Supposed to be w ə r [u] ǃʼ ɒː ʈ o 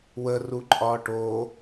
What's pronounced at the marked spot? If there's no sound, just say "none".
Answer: u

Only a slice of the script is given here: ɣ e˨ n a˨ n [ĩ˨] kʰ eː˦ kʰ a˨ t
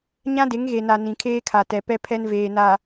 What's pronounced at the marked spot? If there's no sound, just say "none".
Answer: ĩ˨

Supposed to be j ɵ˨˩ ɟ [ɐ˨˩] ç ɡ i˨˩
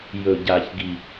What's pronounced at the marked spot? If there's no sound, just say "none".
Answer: a˨˩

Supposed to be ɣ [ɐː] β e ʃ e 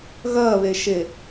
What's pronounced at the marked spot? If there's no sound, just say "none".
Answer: ɐː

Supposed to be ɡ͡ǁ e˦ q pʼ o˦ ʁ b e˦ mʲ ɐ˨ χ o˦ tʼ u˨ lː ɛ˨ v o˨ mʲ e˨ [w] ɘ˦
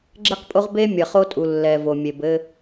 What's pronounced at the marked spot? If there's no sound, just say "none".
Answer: b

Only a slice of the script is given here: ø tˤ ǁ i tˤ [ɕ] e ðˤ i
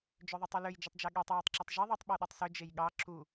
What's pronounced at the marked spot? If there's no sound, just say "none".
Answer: ʒ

